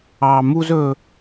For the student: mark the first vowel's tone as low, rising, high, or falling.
high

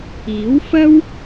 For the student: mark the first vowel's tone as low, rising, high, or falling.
rising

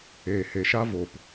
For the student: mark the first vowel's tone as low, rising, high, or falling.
low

